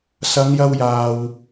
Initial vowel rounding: unrounded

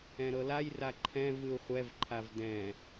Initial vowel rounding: unrounded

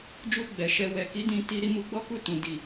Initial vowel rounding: rounded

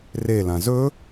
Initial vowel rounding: unrounded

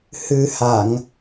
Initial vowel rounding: unrounded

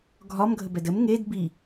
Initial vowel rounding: rounded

